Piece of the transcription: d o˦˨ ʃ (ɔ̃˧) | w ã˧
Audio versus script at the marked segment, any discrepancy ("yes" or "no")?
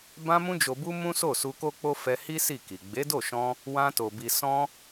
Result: no